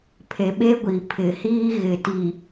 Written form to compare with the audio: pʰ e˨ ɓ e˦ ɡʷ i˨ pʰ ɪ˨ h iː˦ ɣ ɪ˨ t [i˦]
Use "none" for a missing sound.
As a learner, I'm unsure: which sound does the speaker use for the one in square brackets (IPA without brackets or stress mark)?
i˨